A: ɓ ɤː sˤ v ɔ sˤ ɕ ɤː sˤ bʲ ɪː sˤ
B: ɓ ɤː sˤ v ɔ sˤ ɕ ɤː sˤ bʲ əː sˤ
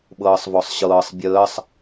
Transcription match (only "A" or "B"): B